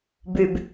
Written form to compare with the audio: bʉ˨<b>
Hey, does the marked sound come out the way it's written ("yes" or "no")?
yes